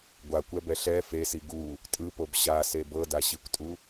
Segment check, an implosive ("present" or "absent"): absent